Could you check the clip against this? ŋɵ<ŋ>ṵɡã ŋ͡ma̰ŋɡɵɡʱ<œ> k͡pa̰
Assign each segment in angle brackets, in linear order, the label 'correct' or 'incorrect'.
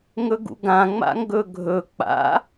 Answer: incorrect: ɡ, incorrect: ɵ

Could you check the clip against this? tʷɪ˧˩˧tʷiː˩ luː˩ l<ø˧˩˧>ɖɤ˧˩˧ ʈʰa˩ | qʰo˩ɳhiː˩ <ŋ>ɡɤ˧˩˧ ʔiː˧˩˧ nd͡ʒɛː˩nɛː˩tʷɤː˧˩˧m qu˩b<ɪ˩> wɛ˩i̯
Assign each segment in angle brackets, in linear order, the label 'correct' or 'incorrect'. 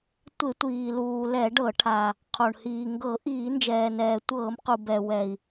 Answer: incorrect: ɛ˧˩˧, correct, incorrect: ɛ˩

